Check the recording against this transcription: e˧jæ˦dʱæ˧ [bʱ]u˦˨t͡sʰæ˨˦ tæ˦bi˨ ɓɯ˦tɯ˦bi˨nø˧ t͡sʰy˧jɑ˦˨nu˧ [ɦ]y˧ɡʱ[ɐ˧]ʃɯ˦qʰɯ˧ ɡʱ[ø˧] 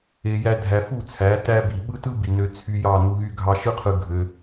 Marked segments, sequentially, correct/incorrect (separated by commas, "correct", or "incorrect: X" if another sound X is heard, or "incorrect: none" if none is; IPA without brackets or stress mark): incorrect: f, correct, incorrect: ɑ˧, correct